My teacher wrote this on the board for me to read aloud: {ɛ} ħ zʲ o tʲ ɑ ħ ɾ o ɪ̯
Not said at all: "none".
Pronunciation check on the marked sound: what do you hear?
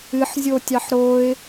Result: ɨ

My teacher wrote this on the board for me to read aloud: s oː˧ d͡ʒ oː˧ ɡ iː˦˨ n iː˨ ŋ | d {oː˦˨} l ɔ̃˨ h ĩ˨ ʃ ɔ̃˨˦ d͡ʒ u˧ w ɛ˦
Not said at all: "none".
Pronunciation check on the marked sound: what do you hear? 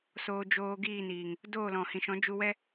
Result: oː˦˨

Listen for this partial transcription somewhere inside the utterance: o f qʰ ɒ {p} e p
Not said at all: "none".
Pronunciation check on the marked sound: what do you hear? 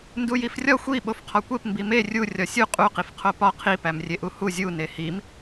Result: kʷ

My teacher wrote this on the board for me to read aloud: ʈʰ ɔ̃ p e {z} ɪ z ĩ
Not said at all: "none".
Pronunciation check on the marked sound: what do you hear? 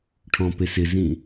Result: s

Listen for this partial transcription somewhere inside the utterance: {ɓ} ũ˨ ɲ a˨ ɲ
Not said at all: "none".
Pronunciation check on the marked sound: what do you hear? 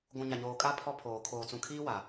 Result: ɡʷ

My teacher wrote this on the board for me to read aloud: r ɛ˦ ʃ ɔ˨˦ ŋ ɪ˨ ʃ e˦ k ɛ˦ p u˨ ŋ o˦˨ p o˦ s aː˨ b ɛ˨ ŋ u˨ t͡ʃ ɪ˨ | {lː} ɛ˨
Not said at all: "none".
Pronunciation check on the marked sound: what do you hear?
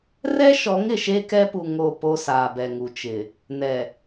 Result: n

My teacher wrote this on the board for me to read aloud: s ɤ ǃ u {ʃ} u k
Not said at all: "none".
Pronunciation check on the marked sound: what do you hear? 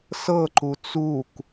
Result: t͡s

